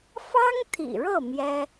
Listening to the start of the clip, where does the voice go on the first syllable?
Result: high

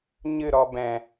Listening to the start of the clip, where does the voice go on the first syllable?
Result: falling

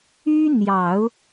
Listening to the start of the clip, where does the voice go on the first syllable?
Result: high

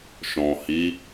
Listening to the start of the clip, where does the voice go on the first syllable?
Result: low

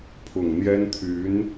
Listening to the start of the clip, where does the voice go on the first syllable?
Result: low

